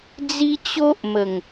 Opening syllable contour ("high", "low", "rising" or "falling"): high